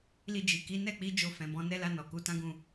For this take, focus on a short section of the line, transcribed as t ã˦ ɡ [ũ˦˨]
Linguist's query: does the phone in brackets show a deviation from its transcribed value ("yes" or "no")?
no